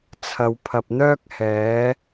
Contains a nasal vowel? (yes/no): no